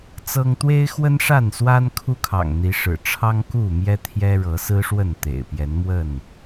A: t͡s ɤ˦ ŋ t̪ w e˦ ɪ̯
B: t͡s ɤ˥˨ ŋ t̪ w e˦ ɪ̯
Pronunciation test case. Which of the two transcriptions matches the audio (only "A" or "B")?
A